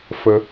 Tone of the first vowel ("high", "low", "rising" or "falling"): high